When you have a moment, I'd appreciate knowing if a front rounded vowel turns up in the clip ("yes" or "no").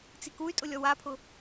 yes